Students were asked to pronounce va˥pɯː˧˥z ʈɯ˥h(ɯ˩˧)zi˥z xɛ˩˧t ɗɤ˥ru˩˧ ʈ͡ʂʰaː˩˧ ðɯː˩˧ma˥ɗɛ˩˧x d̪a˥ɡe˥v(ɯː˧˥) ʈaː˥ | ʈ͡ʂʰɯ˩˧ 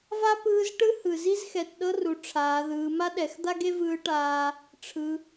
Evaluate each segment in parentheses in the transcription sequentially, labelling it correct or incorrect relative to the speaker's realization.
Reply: incorrect: ɯ˩, correct

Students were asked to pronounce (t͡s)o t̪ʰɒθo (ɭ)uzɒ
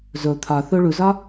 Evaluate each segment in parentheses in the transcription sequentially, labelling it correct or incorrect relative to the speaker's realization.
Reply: incorrect: z, correct

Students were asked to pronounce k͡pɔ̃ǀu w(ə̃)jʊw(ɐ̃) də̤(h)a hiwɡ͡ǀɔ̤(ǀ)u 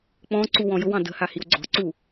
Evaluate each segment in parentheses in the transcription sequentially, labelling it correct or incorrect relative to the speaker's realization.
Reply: incorrect: ɔ̃, incorrect: ɑ̃, correct, correct

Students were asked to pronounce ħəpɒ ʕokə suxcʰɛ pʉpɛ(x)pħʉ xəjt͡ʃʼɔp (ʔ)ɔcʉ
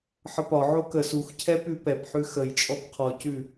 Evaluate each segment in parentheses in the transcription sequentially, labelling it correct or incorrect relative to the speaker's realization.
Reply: incorrect: none, incorrect: qʰ

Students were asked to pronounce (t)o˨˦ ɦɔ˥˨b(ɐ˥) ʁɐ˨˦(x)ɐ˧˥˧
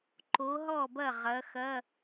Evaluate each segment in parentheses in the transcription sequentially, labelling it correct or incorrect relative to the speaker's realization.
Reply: incorrect: ǃ, incorrect: ɐ˥˨, correct

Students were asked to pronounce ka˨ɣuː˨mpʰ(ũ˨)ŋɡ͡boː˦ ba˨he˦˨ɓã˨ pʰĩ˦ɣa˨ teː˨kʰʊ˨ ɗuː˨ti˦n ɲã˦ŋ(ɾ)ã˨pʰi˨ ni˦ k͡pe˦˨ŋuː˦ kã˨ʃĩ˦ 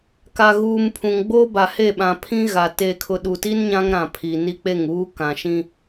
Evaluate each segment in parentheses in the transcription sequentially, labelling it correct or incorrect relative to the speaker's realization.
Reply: correct, correct

